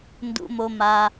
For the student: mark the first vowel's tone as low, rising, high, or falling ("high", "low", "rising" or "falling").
low